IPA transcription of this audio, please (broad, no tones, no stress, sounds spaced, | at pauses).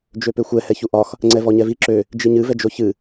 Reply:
d͡ʒ ø p ø xʷ ɛ h ɛ ç u ʔ ɒ x | ŋ͡ǀ ɛ v ɔ ɲ ɛ v i ǁ ø | d͡ʒ i ɲ ɨ v ɛ d͡ʒ o ç ɨ